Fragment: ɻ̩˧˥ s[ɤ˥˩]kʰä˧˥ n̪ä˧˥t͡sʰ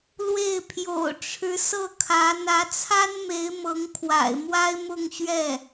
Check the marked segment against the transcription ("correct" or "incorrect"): correct